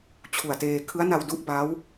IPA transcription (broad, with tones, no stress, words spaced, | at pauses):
t͡ɕʰu˨˩a̯teː˧ kʰɯ˦˥a̯na˧wdu˥˩ʔ ba˦˥w